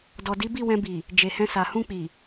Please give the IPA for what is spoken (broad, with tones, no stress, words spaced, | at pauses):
dɔ˨di˨˦ bi˦˨wɛ̃˧bi˨ | d͡ʒe˨hɛ̃˧sa˨ hũ˧k͡pi˨